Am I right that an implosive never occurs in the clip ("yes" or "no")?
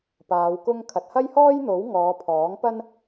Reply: yes